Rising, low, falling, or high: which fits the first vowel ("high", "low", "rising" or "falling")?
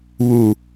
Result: low